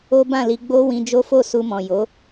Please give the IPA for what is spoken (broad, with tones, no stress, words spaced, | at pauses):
o˦bã˦˨li˧ ɡ͡bo˦wĩ˧ d͡ʒo˦fo˦˨su˧mɔ̃˨ jo˨˦